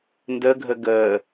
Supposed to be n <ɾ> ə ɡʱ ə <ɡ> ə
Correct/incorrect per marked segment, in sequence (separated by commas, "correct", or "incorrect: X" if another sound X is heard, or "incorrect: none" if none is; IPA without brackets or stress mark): incorrect: d, correct